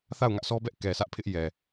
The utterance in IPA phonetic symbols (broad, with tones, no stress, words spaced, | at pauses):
θa˦˨ʊ̯ŋä˦ʔsʰɔ˦bɛ˦ʔ kɛ˨sʰä˦ʔpʰɪ˦ʔ jɛ˨